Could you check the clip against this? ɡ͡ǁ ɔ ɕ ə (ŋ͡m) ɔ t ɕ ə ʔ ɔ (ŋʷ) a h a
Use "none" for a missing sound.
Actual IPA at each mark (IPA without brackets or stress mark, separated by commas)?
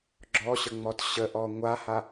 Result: ŋ͡m, ŋʷ